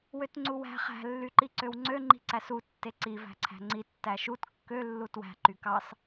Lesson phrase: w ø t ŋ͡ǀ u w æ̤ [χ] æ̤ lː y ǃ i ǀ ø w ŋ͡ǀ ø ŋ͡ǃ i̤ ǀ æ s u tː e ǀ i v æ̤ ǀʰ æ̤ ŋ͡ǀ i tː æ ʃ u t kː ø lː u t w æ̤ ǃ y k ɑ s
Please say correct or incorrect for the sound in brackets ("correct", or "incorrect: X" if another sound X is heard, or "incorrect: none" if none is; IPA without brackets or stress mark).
correct